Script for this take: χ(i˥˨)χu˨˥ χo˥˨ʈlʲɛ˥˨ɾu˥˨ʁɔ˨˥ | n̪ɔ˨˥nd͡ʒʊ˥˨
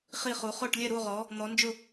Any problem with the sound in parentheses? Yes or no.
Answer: no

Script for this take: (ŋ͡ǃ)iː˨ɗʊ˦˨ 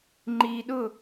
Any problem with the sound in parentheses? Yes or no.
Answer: no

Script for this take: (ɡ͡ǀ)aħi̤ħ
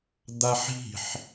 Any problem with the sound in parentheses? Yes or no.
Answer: yes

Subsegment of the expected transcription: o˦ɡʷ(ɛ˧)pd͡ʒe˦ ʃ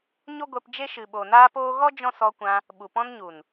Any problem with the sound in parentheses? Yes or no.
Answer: no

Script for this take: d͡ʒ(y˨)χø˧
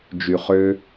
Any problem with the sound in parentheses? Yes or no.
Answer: no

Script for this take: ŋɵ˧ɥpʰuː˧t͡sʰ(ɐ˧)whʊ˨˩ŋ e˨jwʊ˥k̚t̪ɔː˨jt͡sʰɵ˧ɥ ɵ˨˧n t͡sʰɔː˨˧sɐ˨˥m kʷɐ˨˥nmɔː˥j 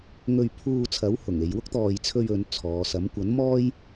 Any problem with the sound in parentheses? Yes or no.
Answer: yes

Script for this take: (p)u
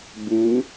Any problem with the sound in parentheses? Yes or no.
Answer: yes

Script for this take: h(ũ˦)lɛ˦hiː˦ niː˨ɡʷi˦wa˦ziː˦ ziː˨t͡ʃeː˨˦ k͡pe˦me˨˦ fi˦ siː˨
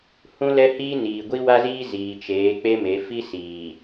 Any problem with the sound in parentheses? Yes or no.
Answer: no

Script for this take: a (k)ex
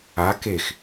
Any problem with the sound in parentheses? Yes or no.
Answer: no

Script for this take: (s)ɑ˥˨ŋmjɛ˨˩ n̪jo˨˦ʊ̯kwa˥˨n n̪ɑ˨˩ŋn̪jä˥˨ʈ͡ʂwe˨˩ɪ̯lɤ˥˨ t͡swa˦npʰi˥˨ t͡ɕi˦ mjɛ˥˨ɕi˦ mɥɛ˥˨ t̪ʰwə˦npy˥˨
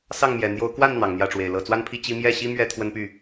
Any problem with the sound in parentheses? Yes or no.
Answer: no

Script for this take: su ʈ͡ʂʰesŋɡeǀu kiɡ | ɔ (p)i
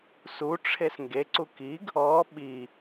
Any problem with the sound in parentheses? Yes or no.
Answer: yes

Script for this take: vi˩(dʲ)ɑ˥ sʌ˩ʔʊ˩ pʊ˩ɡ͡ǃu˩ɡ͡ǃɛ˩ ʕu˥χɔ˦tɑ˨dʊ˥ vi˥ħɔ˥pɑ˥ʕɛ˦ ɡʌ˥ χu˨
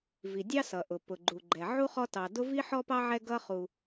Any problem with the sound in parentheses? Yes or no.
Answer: no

